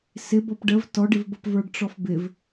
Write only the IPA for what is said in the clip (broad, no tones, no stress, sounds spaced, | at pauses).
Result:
s ɪ b ɔ p ɖ ə v t ɔ ɖ ɪ v b ʌ p v ə˞ ɖ ʈ͡ʂ ɔ f b ɪ v